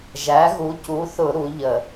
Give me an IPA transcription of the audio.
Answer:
ʒ æ˨˥ ɣ u˨˥ c u˨˥ θ ʊ˧˩˧ ɾ u˨˥ ʎ ə˧˩˧

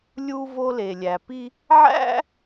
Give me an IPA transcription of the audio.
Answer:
lʲ u˧ v o˧ l e˩ lʲ æ˩ p i˧ | ʕ æ̰˥

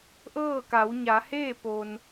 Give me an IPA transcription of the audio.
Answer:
ʔ ɤː˥˨ k a˩˧ w ɲ a˩˧ h eː˥˨ p o˩ n

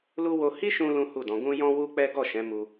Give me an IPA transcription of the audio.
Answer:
l u˦ w o˧ h i˦ ʃ ũ˧ l ũ˦ h u˦˨ d ɔ̃˨˦ ɡ ũ˦ j ɔ̃˦ w u˦ k͡p ɛ˦ ɡ ɔ˦˨ ʃ ɛ̃˨˦ m u˧

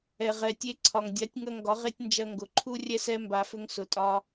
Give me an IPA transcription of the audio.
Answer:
ɛ˨ ʁ ɛ˨ tʲ e˧ ǀʰ ɒ˨ ŋ dʲ a˨˦ tʲ ŋ ɐ˧ ŋ ɡ ɒ˨˦ ʁ e˦ tʲ n d͡ʒ ɐ˧ ŋ ɡ ʊ˨ ǃʰ u˦ rʲ ɛ˦ s ɛ˦ m b a˧ f ʏ˦ ŋ s ʊ˧ tʼ ɒ˦

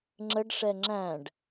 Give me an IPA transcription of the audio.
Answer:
ŋ͡ǁ ə ɖ ʂ ɛ ŋ͡ǁ æ̃ ɖ

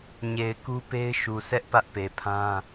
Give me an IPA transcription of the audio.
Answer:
ɲ e˨ ɪ̯ k u˦ p e˦ ɪ̯ ʃ u˨ sʰ ɛ˦ ʔ p ä˦ ʔ p e˨ pʰ ã˦

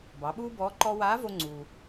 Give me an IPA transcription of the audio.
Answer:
b ɑ˩˧ ɓ uː˥ b ɔː˧˥ ǃ ɔ˥ w aː˧˥ v o˧ ŋ͡ǀ uː˩

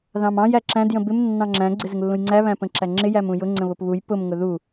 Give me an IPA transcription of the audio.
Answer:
ð ɑ̃ m ɑ̃ j æ ǁ æ̃ d j ə̃ b ɪ m nː ɑ̃ ŋ͡ǁ æ̃ ɡ͡ǀ ɪ z ɪ ŋ lː ũ j ŋ͡ǀ æ β æ̃ p ə̃ ǁ æ ŋ͡ǁ ɪ j æ m ũ j ʊ ŋ͡ǀ ə̃ β ʊ p β u j p ʊ m ŋ ʊ ð u

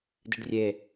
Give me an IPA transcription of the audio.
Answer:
d i ɖ rʲ e

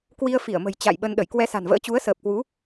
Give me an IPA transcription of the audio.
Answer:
k w i˧ ə̯ f i˧˩ ə̯ m ə̤˨˩ j t͡ɕ a̰˧˨ j ɓ ə˧ n ɗ ə˧˩ j k w ɛ˧ s a̤˨˩ n v ə̰ː˧˥ t͡ɕ u˨˦ ə̯ s əː˨˩ p̚ k w u˨˦

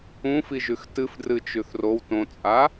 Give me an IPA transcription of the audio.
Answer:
ũ f i ʒ ʉ x t ɨ f d r ɨ t͡ʃ ʉ θ r o w t õ t͡sʼ a

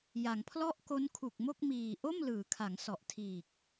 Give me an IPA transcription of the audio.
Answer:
j a˩˦ ŋ pʰ l ɔ˥˩ ʔ k o˦˥ n kʰ u˨˩ k̚ m o˥˩ k̚ m iː˨˩ ʔ o˥˩ m l ɯː˩˦ kʰ a˩˦ ŋ s ɔ˨˩ ʔ tʰ iː˨˩ k̚

